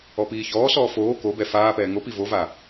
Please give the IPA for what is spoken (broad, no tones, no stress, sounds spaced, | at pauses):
ɔ p iː ç ɔː s ɔː f oː k o b ɛ f aː p ɛː ŋ o p i v o v a